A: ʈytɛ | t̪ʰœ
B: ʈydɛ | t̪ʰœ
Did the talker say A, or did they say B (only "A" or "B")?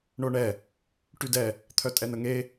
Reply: B